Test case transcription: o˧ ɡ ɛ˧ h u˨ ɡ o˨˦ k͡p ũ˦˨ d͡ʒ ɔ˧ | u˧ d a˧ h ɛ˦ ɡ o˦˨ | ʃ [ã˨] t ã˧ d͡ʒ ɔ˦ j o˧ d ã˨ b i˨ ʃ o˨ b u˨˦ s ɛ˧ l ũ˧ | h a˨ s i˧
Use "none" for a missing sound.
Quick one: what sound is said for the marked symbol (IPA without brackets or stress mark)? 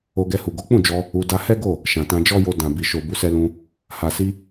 ã˨